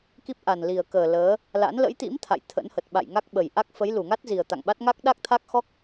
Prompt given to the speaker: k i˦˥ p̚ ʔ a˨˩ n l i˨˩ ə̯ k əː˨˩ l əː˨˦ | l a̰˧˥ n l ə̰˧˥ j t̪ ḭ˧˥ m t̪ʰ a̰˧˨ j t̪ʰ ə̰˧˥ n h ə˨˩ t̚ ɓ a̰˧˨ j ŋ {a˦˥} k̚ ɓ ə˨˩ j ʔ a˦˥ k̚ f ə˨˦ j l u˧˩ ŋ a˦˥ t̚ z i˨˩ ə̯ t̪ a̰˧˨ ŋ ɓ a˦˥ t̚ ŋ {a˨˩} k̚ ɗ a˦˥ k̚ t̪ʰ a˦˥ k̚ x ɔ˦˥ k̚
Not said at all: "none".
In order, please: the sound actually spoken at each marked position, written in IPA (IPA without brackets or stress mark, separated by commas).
a˦˥, a˦˥